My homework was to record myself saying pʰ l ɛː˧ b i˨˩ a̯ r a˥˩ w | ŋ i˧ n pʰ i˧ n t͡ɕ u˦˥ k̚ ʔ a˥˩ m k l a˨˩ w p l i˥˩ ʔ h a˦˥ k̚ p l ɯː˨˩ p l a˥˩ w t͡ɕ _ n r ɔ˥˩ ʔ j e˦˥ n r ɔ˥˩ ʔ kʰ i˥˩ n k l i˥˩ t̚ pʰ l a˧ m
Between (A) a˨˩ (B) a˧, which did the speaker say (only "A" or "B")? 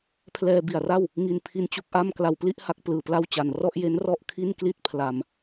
A